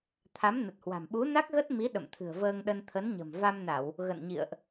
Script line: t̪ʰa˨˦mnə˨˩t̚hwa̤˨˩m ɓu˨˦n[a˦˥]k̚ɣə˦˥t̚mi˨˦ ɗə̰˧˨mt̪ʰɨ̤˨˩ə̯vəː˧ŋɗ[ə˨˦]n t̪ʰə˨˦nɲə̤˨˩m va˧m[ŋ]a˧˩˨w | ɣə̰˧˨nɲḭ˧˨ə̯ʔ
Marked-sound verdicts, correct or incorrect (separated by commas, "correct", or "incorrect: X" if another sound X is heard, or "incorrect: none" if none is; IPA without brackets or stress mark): correct, incorrect: ə˧, incorrect: n